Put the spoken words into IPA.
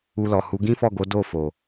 u˧lɔ˨hu˨˦ ɡĩ˦fɔ˦˨ɡo˨˦ do˦˨fo˨

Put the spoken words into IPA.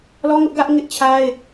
lɔ˦ŋʊ˦ʔɡä˦ʔ ŋɪ˦ʔt͡ɕʰa˦ɪ̯

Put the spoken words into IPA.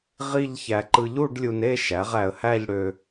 ʁi˥˧ʎçæ˧ ǃɯ˧ʎu˥˧ɖlʲu˧ne˥˧ ʃæ˩˥ʁ æ˧ə̯hæ˥˧ʎɽø˧

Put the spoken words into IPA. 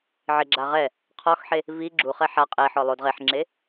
ʕɪ ɡ͡ǁaʁɛ | qʰɔxħe | vi ɡ͡ǁuχɛ ħa qʼe ħɔlˠod ʁeħŋ͡ǁe

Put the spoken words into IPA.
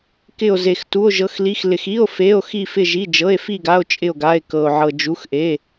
kɪ˥˧o̯ze˧x tu˧˥˧o̯ʒɤ˧˥˧xli˧˥˧xlɪ˧x i˧˥˧o̯ fe˧˥˧o̯ xi˥˧fɪ˥˧ʒi˧˥˧ d͡ʒɤ˧˥˧e̯fi˥˧ɡa˧˥˧o̯ t͡ʃʼɪ˥˧o̯ɡa˧˥˧e̯ kɤ˧o̯ ʕɤ˧d͡ʒu˧˥˧xʔe˧˥˧

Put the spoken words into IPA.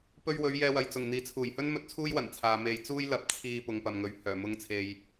pɵ˧ɥwɵ˨˧ɥ jɛː˧wɐ˨jt͡sʊ˨˩ŋ n̪iː˨˥t͡sʰuː˨˩jhɵ˥nmɵ˧t̚ t͡sʰuː˥jwɐ˨˩nt͡sʰaː˨ me˨jt͡suː˥j lɐ˧p̚t͡sʰiː˧ pʊ˨ŋpɐ˨mŋɵ˨ɥ hœː˨˩mʊ˧ŋt͡sʰe˨j

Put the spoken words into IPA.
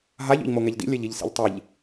ɦaʎ o̰ʎmoŋɛʎdḭ lʲɛʎiʎsḭʎtˤiʎ

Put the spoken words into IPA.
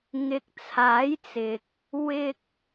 ŋɪ˨k̚t͡sʰaː˨˥jt͡sɪ˨k̚ | wɪ˧k̚

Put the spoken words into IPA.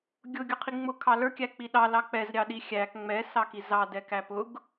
ɡʲʊ ɡʲʊqʰiŋ͡mʊ kʰɑlə˞kʲæ k͡piɗɑ lɑk͡pɛzɾʲɑ ɗixʲæk ŋ͡mɛ sɑkizɑ dɛkæpʊɡ

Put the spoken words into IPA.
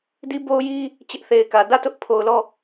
di˦bo˦ʊ̯ji˦ | t͡ɕɪ˦ʔθe˨ɪ̯kä˨ dä˦˨tʊ˦ʔ pʰo˨ʊ̯lɔ˦˨

